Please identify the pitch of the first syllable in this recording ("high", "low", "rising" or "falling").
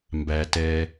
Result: low